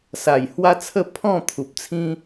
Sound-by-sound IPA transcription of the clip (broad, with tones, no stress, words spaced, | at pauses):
sa˨˩j hwa˦t͡sʰə˥˧ pʰɔ̃˥˧ t̪ʰu˨p̚t͡sʰĩ˦